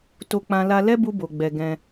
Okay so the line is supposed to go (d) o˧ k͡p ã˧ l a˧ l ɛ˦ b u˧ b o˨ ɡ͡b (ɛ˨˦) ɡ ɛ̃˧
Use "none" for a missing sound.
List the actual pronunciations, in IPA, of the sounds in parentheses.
t, ɛ˨

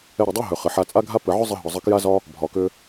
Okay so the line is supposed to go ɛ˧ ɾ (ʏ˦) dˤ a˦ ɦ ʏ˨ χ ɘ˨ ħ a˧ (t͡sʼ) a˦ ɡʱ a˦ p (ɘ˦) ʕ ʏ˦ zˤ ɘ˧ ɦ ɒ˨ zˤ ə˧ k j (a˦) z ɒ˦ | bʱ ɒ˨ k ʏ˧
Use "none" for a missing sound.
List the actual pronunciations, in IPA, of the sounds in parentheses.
ʏ˨, t͡sʼ, ɘ˨, a˦

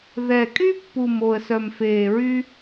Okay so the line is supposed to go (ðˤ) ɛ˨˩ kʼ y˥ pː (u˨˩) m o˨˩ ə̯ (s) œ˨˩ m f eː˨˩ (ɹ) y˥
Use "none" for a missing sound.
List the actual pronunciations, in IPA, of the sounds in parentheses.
ð, u˨˩, s, ɹ

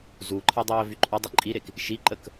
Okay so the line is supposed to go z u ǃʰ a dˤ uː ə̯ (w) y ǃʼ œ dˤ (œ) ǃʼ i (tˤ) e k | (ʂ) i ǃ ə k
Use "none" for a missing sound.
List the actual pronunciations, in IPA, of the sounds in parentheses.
v, œ, ɾ, ʃ

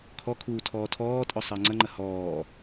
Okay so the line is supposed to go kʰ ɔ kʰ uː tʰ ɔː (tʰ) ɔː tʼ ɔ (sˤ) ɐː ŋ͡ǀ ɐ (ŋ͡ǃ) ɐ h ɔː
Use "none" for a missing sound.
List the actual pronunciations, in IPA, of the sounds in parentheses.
tʰ, sˤ, ŋ͡ǃ

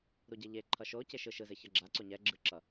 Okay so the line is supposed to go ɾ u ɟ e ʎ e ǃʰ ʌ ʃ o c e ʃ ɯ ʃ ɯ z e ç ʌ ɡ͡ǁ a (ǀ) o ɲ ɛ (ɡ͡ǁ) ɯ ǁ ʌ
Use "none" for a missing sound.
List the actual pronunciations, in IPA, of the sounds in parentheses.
ǀ, ɡ͡ǁ

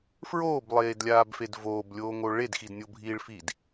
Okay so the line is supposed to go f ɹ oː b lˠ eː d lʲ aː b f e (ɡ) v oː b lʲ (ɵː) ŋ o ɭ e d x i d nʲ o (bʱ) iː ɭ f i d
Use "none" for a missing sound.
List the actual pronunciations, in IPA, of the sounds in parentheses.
d, oː, bʱ

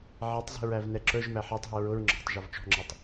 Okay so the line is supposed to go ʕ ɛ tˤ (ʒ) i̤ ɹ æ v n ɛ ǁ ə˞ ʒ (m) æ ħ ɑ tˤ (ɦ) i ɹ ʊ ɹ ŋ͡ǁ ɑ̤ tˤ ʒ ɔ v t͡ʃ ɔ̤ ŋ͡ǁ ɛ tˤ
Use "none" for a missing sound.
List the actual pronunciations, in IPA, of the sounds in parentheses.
z, m, ɦ

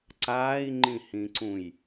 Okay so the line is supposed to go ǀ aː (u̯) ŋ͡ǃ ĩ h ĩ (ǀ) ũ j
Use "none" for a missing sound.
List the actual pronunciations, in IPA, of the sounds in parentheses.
i̯, ǀ

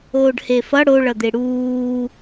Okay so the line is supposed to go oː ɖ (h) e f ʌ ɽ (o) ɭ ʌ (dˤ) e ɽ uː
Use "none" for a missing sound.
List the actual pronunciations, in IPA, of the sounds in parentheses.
h, o, d̪

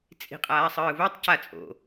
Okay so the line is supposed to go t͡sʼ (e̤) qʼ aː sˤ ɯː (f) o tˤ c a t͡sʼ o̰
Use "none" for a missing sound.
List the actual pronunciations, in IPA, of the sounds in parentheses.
i̤, v

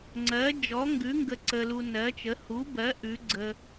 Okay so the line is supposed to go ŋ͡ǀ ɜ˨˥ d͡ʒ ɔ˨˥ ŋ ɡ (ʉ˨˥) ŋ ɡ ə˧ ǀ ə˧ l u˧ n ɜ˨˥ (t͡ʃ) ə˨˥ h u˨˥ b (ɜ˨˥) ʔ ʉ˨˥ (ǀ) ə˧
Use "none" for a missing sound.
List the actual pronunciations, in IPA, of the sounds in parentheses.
ʉ˨˥, t͡ʃ, ɜ˨˥, ɡ͡ǀ

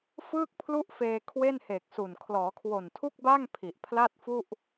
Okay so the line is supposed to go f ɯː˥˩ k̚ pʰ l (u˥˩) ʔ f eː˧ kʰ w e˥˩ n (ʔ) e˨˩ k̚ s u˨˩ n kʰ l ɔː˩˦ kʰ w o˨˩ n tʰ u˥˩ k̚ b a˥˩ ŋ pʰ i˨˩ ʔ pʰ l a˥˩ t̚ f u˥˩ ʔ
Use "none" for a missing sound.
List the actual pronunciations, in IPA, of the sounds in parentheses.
u˥˩, h

